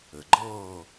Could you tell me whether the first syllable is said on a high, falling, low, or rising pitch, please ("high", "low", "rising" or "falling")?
low